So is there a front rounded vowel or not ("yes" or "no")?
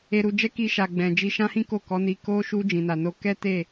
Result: no